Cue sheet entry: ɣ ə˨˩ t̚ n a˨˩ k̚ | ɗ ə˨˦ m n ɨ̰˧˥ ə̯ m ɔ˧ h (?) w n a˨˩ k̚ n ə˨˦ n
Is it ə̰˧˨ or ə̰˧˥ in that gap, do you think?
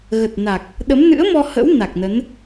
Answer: ə̰˧˥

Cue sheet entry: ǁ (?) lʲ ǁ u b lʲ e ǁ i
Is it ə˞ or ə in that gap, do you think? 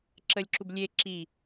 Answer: ə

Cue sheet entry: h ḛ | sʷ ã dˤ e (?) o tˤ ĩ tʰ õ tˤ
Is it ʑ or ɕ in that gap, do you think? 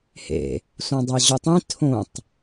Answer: ʑ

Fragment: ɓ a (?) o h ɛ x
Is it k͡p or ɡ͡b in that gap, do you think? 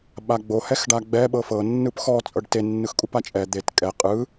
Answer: ɡ͡b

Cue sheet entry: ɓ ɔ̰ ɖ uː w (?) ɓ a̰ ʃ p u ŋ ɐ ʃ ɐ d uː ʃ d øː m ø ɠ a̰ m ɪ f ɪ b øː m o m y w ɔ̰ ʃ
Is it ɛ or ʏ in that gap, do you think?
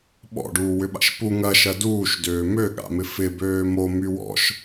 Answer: ʏ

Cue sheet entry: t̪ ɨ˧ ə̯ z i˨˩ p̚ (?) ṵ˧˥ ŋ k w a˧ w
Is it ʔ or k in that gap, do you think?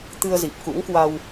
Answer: k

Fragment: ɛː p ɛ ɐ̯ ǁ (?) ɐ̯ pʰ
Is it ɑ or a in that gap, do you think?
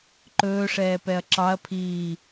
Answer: ɑ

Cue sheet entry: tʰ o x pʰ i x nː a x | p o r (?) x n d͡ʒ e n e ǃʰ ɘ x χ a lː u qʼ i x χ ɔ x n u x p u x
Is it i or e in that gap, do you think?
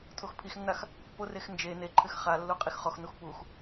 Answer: e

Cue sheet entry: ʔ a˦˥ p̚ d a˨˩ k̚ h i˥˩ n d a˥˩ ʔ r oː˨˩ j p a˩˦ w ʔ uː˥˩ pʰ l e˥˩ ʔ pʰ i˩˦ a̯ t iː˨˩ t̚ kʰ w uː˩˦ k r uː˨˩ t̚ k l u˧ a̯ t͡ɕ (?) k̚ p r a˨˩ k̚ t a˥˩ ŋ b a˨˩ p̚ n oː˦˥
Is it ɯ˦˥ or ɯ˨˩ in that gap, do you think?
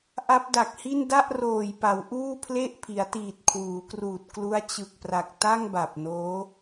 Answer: ɯ˨˩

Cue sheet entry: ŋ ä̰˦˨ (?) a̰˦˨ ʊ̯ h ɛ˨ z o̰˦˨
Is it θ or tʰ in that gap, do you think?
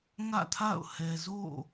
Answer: tʰ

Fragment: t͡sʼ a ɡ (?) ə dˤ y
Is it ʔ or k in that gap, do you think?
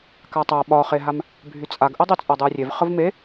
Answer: ʔ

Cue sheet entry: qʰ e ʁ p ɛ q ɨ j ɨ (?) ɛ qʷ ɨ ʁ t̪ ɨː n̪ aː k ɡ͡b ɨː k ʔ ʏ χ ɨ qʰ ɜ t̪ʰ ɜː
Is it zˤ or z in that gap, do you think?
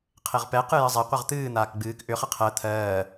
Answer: zˤ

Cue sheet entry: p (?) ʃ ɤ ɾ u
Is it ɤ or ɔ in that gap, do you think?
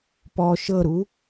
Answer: ɔ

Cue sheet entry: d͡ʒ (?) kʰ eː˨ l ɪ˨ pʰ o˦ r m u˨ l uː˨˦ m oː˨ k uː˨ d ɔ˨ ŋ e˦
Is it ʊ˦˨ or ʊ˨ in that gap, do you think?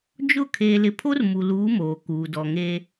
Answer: ʊ˦˨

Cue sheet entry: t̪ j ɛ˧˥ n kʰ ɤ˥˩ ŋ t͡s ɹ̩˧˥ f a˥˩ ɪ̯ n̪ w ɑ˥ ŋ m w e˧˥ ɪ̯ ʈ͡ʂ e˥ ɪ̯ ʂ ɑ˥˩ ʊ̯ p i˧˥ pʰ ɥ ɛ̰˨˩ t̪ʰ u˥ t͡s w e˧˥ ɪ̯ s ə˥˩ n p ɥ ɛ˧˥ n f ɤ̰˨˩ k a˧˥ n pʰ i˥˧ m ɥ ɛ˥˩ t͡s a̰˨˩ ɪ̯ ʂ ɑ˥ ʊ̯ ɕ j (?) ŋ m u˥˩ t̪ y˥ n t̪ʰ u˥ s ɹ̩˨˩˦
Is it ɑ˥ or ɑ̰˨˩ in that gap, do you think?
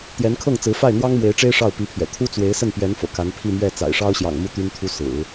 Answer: ɑ̰˨˩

